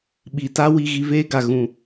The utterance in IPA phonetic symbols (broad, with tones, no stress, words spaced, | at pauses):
ɓi˨ta˦ wi˧ɣi˧veː˦ɡa˨ ɣũ˨